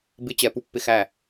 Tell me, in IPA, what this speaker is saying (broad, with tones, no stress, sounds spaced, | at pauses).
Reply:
b ɪ˧˥ t͡ɕ ɛ˨ p u˥˩ pː ɪ˥˩ x æ˥˩